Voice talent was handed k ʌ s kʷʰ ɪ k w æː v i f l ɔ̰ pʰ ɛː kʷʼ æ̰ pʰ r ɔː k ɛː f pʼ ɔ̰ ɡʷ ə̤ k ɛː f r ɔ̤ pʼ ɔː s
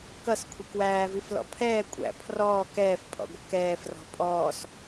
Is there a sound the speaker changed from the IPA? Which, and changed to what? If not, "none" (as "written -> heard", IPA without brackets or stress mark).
none